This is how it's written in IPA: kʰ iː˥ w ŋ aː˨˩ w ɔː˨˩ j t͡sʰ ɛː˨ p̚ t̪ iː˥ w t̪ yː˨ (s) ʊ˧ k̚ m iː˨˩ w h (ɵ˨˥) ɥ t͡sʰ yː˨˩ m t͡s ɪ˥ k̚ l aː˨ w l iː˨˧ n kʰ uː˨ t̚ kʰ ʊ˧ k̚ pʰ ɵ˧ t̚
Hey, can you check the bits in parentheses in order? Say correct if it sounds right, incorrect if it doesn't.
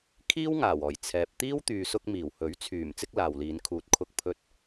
correct, correct

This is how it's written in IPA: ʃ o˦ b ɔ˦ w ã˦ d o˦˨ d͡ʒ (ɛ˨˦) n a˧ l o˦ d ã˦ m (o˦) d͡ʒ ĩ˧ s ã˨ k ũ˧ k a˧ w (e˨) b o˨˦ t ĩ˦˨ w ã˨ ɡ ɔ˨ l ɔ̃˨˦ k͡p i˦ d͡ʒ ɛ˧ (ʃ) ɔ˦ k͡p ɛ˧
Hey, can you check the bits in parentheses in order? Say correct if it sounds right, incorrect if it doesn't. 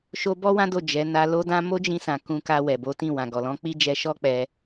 correct, correct, incorrect, correct

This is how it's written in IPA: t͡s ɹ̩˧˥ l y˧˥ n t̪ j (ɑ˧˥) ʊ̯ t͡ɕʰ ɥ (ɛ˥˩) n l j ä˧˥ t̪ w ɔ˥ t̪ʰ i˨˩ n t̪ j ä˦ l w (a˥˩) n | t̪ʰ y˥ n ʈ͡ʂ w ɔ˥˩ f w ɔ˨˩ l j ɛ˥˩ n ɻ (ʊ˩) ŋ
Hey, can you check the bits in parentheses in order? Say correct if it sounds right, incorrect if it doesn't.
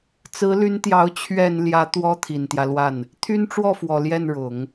correct, incorrect, correct, incorrect

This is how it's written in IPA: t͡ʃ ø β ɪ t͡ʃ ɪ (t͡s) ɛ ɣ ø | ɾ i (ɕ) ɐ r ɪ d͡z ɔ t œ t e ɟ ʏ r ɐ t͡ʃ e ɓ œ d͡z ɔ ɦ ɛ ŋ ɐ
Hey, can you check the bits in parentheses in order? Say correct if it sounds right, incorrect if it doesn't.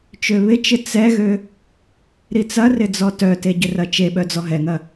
correct, incorrect

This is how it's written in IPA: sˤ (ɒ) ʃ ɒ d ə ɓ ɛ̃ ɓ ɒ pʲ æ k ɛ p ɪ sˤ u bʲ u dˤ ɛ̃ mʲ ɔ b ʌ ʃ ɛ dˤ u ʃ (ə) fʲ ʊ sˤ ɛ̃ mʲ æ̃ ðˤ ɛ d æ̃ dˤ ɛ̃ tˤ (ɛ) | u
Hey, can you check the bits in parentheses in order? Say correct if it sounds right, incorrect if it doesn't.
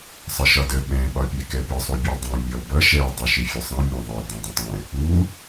incorrect, incorrect, incorrect

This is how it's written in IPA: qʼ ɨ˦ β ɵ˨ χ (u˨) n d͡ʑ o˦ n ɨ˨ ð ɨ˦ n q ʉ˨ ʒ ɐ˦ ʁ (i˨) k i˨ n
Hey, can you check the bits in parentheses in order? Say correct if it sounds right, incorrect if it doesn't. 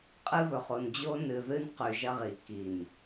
incorrect, correct

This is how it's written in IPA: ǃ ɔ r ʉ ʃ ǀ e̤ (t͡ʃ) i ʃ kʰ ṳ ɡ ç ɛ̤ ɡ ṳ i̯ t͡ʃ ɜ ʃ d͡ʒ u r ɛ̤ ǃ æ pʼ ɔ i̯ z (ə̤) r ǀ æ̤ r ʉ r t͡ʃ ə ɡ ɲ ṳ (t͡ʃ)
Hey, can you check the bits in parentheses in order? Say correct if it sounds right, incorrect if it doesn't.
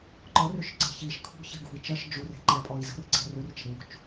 incorrect, correct, correct

